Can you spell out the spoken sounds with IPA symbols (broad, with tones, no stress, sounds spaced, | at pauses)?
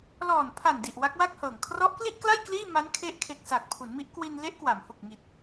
l ɔː˨˩ n pʰ a˨˩ n d i˨˩ ʔ w a˦˥ k̚ w a˥˩ k̚ h ɤː˨˩ ŋ kʰ r ɔ˦˥ ʔ k l i˥˩ ʔ k l a˥˩ j k l iː˥˩ m a˦˥ n kʰ e˦˥ ʔ kʰ e˨˩ k̚ s aː˨˩ k̚ pʰ u˩˦ n m i˦˥ ʔ k w i˧ n l e˦˥ ʔ k w a˩˦ m h u˨˩ k̚ ŋ i˨˩ t̚